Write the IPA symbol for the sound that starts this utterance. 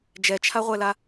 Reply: d͡ʒ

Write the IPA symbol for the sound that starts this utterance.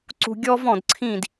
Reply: ǀ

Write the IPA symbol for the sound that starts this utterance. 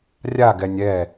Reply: rʲ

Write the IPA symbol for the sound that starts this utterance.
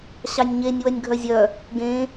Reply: ɕ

